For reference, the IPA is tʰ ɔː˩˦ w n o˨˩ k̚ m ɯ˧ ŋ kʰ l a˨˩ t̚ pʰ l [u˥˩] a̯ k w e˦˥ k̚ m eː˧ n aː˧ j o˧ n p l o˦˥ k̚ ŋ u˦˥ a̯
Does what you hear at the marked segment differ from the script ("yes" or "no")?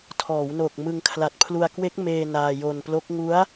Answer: yes